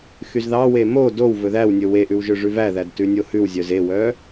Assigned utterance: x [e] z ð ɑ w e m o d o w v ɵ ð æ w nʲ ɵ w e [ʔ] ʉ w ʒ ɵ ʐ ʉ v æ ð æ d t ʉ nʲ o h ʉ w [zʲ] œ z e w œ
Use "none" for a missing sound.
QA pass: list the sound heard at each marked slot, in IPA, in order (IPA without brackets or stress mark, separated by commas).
y, ʔ, zʲ